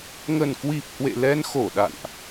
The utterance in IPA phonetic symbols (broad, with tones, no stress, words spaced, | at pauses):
ŋə˨˩nkwi˨˩p̚ hwḛ˧˨lɛ˧nxo˧˩ ɗa̰˧˨nʔ